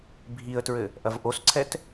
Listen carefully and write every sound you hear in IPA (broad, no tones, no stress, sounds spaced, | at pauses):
bʱ i ə̯ t ɹ ɘ | ʔ ɐ v ʔ o s ǀʰ ɛ t